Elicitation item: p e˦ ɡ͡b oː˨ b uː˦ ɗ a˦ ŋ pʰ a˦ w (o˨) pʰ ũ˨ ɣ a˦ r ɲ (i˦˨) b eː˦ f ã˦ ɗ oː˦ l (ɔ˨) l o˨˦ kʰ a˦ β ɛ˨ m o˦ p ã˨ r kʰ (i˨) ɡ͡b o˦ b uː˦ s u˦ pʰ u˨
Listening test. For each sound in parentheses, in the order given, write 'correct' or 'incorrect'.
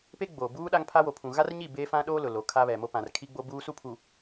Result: correct, correct, incorrect, incorrect

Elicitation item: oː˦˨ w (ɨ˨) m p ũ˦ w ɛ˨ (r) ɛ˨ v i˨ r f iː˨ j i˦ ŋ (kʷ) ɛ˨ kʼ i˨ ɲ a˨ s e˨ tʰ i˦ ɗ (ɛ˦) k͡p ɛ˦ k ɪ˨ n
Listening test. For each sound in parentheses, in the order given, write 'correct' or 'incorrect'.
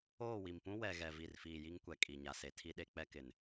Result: incorrect, incorrect, correct, incorrect

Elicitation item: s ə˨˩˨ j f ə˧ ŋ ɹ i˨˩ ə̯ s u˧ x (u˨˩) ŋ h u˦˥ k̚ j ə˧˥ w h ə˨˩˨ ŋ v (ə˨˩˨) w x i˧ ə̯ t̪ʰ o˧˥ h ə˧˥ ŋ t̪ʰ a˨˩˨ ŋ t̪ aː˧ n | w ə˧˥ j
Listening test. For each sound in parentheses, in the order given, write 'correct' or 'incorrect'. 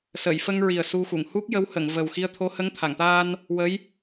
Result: incorrect, incorrect

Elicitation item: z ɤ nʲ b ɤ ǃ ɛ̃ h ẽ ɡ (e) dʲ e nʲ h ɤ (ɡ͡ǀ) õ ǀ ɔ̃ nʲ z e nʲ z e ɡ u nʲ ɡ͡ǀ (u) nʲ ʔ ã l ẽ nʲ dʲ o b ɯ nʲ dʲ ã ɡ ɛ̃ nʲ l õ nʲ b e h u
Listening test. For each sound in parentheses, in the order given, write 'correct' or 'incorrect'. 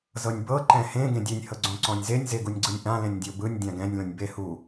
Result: incorrect, correct, incorrect

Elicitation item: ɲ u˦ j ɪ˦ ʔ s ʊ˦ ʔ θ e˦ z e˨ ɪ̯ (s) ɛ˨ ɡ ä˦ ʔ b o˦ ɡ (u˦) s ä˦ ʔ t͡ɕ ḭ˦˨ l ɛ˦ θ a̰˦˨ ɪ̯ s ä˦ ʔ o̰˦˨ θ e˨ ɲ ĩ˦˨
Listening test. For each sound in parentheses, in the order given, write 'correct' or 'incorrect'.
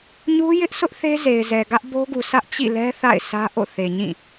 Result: incorrect, incorrect

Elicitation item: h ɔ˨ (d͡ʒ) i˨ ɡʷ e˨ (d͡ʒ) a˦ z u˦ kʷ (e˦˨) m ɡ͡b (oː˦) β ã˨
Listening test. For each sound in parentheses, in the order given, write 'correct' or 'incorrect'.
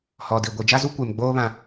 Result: incorrect, correct, incorrect, correct

